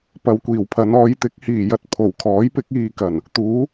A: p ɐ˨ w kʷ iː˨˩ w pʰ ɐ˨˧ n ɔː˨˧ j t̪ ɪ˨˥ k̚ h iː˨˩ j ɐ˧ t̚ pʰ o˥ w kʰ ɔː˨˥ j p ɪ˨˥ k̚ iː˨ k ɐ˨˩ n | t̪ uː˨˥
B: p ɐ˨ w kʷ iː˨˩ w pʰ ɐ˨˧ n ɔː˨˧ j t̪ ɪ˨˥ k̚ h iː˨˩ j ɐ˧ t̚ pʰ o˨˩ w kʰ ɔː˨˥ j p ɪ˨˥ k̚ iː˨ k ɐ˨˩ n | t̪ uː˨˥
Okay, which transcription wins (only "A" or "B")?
B